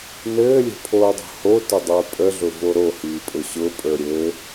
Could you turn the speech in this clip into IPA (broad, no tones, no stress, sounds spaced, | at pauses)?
n ɘː lʲ ə̤ pʰ oː dˤ o̤ h o t ə dˤ ə˞ pʼ ə ɮ ʊ v o ɾ o h iː pʼ ʊ ɕ ʊ pʼ ə˞ ɾʲ ɘː